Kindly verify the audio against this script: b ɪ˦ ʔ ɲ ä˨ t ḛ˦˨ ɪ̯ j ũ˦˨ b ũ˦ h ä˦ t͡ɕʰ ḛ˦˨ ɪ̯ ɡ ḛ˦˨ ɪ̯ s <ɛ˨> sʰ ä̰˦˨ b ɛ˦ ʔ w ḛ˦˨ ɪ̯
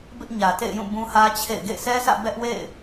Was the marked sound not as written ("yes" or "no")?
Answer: yes